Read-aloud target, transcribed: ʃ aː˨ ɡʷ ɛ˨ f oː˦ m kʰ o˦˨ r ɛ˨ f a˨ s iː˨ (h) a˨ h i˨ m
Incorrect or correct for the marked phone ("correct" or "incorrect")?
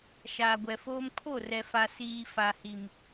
incorrect